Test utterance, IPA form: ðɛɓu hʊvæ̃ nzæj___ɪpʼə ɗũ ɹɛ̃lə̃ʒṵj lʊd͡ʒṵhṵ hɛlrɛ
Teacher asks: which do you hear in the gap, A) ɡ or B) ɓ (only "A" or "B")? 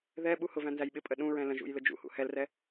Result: B